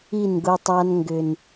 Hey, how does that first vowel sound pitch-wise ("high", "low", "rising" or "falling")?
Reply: falling